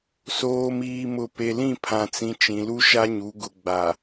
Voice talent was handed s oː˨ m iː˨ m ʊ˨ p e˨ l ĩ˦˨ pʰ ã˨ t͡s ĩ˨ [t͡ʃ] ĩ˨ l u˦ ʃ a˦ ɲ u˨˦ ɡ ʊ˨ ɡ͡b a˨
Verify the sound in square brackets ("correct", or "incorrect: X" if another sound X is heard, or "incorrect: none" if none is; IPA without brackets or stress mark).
correct